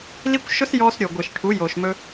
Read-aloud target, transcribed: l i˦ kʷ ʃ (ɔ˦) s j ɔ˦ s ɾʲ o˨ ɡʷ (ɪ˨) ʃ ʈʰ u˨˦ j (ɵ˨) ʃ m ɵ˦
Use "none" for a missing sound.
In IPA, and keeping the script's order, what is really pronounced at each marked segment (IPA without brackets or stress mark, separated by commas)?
ʊ˦, ɪ˨, o˨